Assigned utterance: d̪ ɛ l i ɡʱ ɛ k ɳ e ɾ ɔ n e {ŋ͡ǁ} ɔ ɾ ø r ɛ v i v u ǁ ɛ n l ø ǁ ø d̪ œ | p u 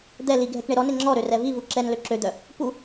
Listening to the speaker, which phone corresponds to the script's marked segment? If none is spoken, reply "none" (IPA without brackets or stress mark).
ŋ͡ǁ